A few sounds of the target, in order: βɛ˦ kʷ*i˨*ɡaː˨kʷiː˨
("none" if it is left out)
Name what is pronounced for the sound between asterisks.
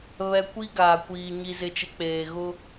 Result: i˦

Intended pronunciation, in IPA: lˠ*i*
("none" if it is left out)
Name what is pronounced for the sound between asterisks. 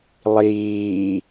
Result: iː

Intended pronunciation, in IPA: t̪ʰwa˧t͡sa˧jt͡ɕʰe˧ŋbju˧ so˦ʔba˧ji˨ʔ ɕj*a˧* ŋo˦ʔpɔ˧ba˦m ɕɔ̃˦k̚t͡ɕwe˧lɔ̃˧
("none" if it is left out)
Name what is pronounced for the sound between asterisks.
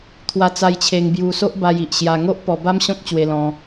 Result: a˧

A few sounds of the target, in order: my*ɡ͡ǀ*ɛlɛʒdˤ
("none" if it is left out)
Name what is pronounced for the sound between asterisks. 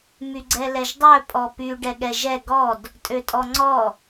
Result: ɡ͡ǀ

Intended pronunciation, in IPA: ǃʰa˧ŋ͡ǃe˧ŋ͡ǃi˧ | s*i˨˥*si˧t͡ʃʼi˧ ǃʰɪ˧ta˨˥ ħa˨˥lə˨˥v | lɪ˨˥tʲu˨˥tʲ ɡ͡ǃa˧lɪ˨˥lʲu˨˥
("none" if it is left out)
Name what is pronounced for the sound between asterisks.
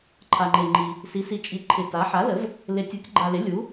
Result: i˨˥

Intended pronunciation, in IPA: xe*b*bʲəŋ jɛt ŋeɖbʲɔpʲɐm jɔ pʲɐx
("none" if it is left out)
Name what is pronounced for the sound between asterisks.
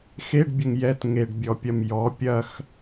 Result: ɖ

